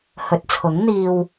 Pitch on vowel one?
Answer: low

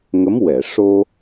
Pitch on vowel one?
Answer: rising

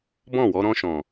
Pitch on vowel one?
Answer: falling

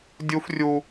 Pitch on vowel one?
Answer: high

